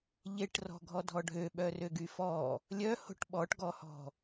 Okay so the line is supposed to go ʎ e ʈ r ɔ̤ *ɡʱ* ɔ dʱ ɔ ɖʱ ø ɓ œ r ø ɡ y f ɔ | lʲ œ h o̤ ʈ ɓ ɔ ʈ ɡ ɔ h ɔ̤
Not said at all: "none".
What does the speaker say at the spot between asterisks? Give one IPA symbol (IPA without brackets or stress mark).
ɡʱ